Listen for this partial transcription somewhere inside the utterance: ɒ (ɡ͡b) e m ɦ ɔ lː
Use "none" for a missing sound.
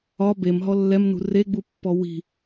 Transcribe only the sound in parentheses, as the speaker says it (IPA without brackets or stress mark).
b